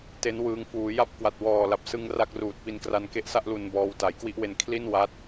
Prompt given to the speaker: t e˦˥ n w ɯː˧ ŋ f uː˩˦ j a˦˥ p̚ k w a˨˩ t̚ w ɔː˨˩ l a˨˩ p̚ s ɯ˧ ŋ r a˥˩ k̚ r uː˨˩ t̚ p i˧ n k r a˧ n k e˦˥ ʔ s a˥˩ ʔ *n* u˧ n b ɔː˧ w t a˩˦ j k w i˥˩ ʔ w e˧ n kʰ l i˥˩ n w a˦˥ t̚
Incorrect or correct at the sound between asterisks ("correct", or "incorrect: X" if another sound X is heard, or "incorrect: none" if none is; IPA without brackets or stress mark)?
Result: incorrect: l